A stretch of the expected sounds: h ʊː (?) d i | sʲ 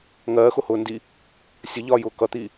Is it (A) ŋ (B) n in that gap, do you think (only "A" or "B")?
B